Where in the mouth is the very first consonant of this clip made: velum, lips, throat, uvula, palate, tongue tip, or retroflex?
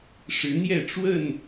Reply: retroflex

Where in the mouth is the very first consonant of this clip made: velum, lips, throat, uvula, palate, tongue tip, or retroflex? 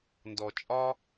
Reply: tongue tip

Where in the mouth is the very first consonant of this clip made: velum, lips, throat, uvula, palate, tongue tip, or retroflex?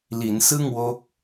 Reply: tongue tip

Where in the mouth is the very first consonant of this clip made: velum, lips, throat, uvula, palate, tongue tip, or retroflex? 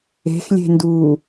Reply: velum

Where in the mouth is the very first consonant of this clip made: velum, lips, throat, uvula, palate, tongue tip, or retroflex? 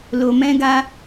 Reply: tongue tip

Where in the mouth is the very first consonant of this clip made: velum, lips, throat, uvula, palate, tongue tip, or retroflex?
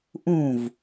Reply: throat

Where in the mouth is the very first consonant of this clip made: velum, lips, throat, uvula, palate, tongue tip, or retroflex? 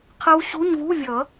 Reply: uvula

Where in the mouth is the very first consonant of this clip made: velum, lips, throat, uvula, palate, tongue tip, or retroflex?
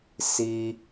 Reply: tongue tip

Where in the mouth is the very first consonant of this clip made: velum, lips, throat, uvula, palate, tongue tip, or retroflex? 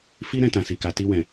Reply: lips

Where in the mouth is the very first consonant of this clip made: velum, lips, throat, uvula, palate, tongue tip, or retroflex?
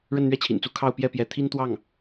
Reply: retroflex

